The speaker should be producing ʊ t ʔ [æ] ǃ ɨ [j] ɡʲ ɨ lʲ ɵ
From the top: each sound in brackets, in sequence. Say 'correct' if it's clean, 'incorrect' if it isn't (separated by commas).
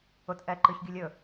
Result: incorrect, incorrect